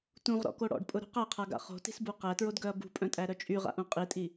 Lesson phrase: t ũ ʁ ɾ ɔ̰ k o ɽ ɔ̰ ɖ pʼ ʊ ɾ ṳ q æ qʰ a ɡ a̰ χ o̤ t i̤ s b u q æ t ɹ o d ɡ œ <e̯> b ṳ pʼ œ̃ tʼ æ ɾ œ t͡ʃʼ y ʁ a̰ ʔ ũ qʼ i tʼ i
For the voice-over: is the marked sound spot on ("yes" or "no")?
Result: no